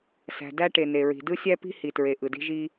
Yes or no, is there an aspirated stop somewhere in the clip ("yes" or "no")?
no